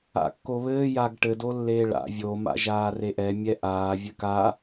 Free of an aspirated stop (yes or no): yes